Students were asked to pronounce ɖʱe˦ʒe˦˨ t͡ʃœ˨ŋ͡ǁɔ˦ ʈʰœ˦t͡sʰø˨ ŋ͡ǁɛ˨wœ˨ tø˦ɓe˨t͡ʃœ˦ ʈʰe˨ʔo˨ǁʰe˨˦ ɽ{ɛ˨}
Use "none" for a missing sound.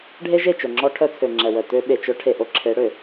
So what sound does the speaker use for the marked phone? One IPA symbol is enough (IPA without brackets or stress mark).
ø˨